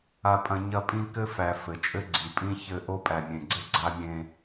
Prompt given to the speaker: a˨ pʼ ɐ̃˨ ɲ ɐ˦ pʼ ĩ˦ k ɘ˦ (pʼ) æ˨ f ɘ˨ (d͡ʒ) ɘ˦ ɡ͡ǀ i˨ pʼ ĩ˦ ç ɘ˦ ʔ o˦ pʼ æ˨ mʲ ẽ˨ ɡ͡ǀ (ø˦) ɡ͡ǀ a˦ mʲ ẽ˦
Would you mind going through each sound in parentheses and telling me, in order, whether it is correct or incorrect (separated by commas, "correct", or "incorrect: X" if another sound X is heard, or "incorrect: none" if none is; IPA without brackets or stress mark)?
incorrect: f, incorrect: t͡ʃʼ, incorrect: ɘ˦